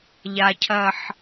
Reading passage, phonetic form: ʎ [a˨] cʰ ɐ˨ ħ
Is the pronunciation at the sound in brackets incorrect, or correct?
correct